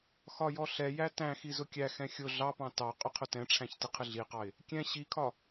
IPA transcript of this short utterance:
x ɒ j ɔ ɬ ɛ j æ t æ̃ x i z ʊ kʲ æ x ɛ̃ xʲ ʊ ɮ ɑ p ɑ̃ t ɑ qʼ ʊ qʰ ʊ t ɛ̃ ʈ͡ʂʰ æ̃ ç t ɪ qʰ ɪ ɮ i q ɑ ɪ̯ | kʲ ɛ̃ ɕ i kʰ ɒ

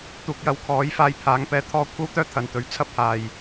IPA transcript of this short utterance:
t̪ uː˨˥ k̚ j ɐ˨˥ w kʰ ɔː˨˥ j f aː˧ j pʰ aː˨˥ ŋ p ɛː˧ t̪ʰ ɔː˥ kʷʰ ɐ˥ w t̪ œː˥ t̪ʰ ɐ˨ n t̪ ɵ˨˧ ɥ t͡sʰ ɐ˥ p̚ h aː˨ j

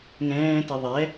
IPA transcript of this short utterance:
ŋ ɛ̃ː t ɪ ðˤ ɛ

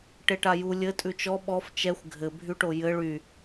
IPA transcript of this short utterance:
ʈ e ʈ a j u lʲ ɘ tʼ ʉ t͡ʃ ɔ ɓ ɔ f t͡ʃ ɛ xʷ ɡʱ ɘ bʱ y ʈ o j ɘ ɭ y

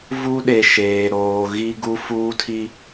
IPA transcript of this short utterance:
v u˦ ɗ e˨ ʃ eː˨ ɾ oː˨ ɣ i˦ ɡ u˦ f uː˦ tʰ i˦

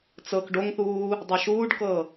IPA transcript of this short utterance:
t͡s ɤ k ɖ o ŋ θ uː | dˤ ɤ ʃ uː ɖ k ɤ

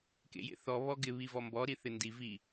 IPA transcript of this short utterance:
k ḛ j ḛ θ ɔ β ɔ ɡ ɪ β i v ɔ m b ɔ ɾ i θ ɪ n d i v i

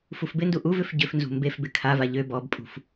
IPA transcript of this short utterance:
f u f b ɪ n d u ʔ u v ʏ f ɟ ʏ f n z ṳ m b e f b ɪ kʰ a v a ʎ ø b ɔ b pʼ ṳ f

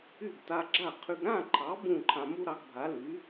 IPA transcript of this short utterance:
y˥˩ ɡ t a˧ ɡ͡ǁ a˥˩ qʰ y˧ ɡ ɾ ã˥˩ ǃʰ ɑ˩˥ b ũ˥˩ ǃʰ ã˧ m u˥ ɾ ɑ˩˥ ɡ bʱ a˩˥ l y˩˥

